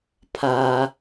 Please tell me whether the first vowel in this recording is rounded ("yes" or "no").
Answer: no